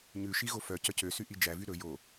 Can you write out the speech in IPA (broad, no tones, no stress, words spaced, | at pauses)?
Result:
ɲʉʃi ɣofœcœ cøsy ʔid͡ʒævy ɾɵ jo